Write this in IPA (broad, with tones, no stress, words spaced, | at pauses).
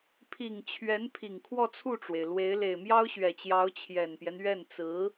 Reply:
pʰi˨˩ŋ t͡ɕʰɥɛ˧˥npʰi˨˩ŋ kʰwɔ˥˧t͡sʰu˥˩ʈ͡ʂwe˩ɪ̯lwe˧˥ɪ̯ le˨˩ɪ̯mjɑ˥ʊ̯ɕɥɛ˨˩t͡ɕjɑ˧˥ʊ̯ t͡ɕʰjɛ˨˩npjɛ˦nɥɛ˥˩n t͡sɹ̩˧˥